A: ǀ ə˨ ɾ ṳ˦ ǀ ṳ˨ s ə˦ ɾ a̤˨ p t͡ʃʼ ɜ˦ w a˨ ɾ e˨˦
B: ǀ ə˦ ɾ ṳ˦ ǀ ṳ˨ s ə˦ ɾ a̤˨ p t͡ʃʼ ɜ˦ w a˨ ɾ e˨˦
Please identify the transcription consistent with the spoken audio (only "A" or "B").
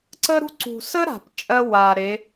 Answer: B